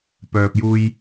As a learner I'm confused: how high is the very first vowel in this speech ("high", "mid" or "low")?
mid